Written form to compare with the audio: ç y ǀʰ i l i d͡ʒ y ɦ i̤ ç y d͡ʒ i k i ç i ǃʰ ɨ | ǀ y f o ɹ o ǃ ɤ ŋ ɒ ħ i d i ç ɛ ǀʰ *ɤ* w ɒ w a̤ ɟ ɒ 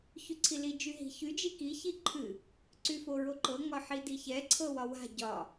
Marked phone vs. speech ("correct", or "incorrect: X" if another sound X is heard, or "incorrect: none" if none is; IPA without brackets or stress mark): correct